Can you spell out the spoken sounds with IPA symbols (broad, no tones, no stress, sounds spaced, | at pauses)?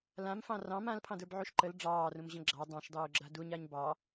l ã m f ɑ̃ r ɑ̃ m ã l pʰ ɑ̃ d ə˞ b ʕ u ʃ ǃ ə l ɖ͡ʐ ɑː r ũ m ʑ ə̃ ɡ͡ǁ ɑ dˤ ɑ̃ ʃ dˤ uː ɡ͡ǁ a d u ɲ a ɲ b ɑ